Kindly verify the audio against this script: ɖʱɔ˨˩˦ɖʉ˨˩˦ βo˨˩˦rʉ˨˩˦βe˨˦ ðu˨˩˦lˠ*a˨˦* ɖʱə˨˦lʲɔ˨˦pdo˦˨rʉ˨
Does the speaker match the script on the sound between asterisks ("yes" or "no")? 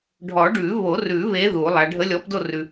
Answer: yes